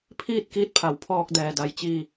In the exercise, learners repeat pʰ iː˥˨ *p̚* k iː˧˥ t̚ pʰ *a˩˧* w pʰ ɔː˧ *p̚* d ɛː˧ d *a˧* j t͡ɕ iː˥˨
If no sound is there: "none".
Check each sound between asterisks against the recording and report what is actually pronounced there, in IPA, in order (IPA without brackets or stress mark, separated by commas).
t̚, a˩˧, k̚, a˧